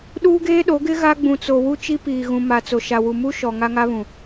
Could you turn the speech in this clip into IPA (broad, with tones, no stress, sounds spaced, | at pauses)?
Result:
ɗ uː˦ ɡ eː˦ ɗ o˨˦ ɡ ɪ˦ ɣ a˦ ɡ͡b ũ˨ t͡s o˨ w u˦ t͡ʃ i˦ p iː˨ ɣ ũ˨ m a˨ t͡s o˨ ʃ a˨ w u˨ m u˦ ʃ ɔ˨ ŋ a˦ ŋ a˦ β ũ˨